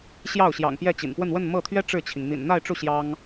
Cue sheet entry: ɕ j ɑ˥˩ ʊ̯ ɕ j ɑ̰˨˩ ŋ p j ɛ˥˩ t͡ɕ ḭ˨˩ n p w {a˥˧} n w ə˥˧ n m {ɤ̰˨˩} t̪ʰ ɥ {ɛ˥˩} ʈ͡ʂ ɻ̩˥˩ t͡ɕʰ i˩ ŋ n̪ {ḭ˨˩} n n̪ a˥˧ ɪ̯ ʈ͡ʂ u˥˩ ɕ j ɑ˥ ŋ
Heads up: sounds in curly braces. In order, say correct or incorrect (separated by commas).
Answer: incorrect, incorrect, incorrect, correct